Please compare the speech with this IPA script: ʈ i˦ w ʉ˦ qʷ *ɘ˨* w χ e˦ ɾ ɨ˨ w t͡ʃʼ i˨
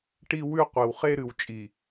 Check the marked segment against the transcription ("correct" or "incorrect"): incorrect